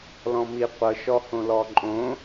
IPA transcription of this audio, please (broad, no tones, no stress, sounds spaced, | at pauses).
l ɔ̃ m i qʷ ɤ ʃ ɔ h õ l ɔ ǃʼ õ